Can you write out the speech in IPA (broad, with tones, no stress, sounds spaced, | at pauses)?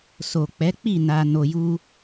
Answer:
s o˨ k͡p ɛ˨˦ k͡p i˦˨ n a˧ n o˧ j u˦